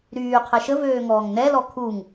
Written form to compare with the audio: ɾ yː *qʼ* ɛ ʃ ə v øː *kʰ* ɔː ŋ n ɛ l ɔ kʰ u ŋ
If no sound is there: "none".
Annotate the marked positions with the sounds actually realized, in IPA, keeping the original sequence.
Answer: qʰ, ŋ

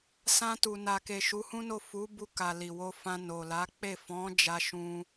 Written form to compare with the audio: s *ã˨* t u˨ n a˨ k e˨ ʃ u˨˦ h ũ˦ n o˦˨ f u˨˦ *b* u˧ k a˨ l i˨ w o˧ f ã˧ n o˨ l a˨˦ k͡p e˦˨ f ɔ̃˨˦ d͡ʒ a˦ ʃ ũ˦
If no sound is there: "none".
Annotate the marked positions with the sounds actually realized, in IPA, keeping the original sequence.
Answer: ã˧, b

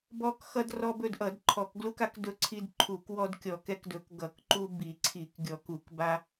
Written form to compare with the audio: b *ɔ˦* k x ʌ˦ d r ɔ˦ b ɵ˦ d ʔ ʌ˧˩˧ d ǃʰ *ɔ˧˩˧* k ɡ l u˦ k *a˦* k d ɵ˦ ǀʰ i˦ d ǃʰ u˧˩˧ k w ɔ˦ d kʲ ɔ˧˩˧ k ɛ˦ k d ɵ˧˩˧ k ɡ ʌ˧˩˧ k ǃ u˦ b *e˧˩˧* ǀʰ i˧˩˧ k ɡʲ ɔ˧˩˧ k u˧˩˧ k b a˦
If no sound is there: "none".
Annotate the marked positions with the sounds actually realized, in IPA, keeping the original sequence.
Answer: ɔ˦, ɔ˧˩˧, a˦, i˧˩˧

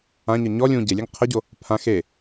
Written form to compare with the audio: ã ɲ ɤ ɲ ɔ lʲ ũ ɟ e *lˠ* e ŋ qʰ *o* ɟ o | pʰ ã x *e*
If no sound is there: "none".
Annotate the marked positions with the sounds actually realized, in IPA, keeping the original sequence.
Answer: lʲ, ɤ, e

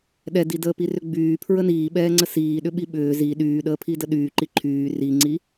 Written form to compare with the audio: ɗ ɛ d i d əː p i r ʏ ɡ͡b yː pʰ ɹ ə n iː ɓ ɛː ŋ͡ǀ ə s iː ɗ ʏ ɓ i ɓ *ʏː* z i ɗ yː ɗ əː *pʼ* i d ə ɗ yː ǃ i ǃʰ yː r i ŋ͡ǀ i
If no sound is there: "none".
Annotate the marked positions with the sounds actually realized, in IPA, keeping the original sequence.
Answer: ʏː, pʰ

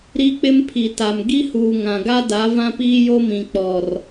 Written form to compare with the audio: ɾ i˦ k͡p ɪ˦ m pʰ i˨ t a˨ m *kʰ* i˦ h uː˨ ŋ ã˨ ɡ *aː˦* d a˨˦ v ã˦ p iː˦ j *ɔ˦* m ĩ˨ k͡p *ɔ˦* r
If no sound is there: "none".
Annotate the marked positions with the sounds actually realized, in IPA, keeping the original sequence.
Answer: ɡ, a˦, o˦, ɔ˨

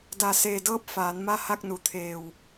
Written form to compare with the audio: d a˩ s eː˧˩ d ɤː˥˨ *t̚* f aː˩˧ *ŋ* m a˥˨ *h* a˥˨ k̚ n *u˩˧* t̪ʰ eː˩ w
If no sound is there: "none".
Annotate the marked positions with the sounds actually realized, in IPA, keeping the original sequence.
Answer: p̚, n, h, u˩

